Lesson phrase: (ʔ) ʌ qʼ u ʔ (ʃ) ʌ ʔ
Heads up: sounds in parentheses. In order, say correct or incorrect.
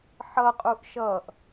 incorrect, correct

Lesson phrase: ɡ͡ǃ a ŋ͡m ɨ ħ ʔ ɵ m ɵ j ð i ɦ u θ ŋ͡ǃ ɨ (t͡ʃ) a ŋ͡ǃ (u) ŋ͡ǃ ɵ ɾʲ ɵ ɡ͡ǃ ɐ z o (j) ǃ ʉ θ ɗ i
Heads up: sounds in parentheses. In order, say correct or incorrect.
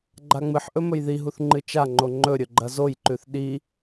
correct, incorrect, correct

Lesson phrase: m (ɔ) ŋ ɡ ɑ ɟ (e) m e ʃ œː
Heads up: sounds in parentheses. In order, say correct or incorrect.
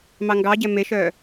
incorrect, incorrect

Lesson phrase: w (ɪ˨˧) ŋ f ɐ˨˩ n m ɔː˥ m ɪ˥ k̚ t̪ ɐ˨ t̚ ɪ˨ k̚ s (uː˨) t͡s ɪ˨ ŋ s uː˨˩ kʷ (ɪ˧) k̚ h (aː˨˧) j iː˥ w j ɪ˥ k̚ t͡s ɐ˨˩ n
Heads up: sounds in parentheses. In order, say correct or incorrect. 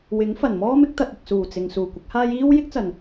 incorrect, incorrect, incorrect, incorrect

